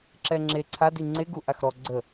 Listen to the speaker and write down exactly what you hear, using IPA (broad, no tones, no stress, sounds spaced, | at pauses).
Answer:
ǁ ɛ ŋ͡ǁ e ǀʰ a d i ŋ͡ǀ e ɡ u ʔ a x ɾ ɔ ɡ͡ǀ ə